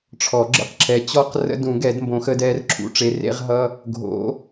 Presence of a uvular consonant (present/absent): present